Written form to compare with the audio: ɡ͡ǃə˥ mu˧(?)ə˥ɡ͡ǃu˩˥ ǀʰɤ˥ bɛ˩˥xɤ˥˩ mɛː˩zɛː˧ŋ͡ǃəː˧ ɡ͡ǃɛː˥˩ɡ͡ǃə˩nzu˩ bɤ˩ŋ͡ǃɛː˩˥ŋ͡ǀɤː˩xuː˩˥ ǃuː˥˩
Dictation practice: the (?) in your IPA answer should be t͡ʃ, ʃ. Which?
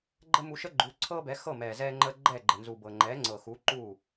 ʃ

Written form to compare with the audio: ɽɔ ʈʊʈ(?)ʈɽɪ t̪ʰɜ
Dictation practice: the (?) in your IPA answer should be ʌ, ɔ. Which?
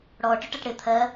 ʌ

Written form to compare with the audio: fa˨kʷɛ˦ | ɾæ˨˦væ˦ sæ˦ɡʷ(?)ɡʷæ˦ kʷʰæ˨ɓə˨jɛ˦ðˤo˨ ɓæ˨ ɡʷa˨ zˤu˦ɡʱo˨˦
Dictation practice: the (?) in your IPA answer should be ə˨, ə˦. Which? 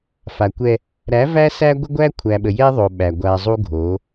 ə˦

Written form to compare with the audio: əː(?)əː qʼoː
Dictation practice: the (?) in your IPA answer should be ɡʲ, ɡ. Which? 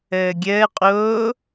ɡʲ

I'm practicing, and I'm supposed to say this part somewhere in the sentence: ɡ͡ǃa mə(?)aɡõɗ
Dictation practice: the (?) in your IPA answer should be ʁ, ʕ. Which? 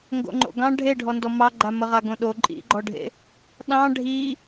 ʁ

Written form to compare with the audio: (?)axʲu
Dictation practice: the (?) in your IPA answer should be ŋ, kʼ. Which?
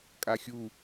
kʼ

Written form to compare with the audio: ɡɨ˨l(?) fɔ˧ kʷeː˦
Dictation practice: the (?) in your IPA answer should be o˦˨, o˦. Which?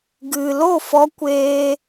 o˦˨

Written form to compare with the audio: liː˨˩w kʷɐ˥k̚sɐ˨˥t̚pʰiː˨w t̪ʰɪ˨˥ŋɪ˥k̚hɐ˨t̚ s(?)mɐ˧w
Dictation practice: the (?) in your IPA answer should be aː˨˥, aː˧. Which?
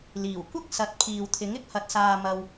aː˧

